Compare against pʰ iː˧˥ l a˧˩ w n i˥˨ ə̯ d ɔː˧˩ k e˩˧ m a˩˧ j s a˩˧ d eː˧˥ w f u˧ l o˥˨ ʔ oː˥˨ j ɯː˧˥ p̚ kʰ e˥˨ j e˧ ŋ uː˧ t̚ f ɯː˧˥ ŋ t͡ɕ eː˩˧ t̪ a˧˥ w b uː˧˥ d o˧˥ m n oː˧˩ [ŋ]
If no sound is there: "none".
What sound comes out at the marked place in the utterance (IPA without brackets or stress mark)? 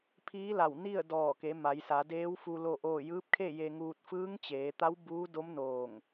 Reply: ŋ